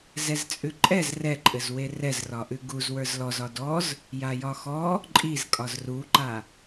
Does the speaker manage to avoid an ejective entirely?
no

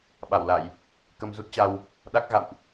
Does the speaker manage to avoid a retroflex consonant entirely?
yes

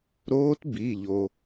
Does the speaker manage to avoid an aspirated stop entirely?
yes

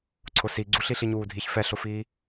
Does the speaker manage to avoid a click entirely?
no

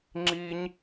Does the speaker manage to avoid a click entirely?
no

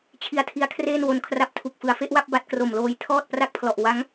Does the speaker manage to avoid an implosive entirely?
yes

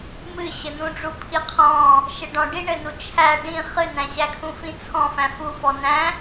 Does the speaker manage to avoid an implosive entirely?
yes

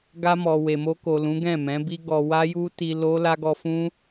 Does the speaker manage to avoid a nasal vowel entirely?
no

